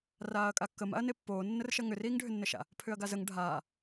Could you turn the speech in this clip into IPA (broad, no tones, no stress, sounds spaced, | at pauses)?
r aː ɐ̯ kʼ a kː ə m a̰ ɐ̯ n e pː oː nː ə r ʃ ɐ ŋ ʏ r iː ŋ ɖʱ ʏ nː ə ʃ a̰ | pʰ ʏ ɐ̯ ɡ a z ə ŋ ɖʱ aː